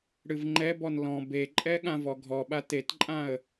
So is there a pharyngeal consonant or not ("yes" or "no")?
no